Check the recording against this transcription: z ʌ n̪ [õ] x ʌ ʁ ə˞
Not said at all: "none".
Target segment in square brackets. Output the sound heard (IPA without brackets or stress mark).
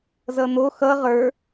o